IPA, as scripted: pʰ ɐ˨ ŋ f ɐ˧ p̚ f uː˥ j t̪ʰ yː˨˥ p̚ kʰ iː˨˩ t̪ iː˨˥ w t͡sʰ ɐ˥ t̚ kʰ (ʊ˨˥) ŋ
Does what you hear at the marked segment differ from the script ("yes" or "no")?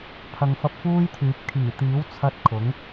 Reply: no